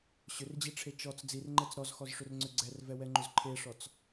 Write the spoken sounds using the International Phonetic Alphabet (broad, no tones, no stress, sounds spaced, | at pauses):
ɕ ʏ r d͡ʑ i ʈ͡ʂʰ e t͡ʃ ɔ t͡s d͡z i r ŋ͡ǃ ɛ t͡s ɾ ɔ z x ɔ z ʂ ʏ r ŋ͡ǀ ʏ ɡ͡ǀ ɛ r v ɛ w ɛ ŋ͡ǃ ʏ z ǃʰ e ʂ ɔ t͡s